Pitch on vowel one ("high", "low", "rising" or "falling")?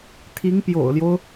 rising